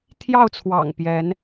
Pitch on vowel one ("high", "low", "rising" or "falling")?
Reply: falling